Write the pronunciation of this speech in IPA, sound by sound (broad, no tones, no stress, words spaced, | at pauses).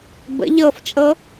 bə̰ ʎɤft͡ʃʼɤ